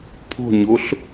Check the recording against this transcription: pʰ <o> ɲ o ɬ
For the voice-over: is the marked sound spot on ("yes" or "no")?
no